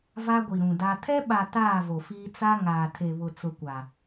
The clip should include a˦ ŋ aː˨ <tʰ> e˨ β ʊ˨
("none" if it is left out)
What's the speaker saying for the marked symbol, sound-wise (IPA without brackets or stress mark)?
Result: tʰ